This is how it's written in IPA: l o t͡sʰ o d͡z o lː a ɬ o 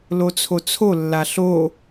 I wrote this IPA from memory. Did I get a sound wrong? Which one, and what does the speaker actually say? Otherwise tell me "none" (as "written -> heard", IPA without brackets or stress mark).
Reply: d͡z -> t͡sʰ